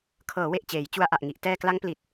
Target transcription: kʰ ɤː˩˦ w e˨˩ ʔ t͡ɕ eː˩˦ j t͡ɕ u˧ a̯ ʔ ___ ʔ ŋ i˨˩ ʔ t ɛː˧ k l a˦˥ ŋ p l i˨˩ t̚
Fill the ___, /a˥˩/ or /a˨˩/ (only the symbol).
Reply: a˨˩